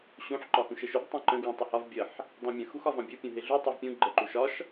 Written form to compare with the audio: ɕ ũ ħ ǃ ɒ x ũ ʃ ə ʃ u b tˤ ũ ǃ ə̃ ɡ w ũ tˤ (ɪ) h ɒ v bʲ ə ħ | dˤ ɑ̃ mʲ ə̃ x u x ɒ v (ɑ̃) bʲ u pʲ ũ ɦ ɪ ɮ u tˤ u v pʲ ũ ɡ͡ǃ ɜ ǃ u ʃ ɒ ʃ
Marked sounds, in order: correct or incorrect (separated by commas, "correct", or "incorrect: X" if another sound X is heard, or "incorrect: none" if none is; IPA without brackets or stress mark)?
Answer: correct, correct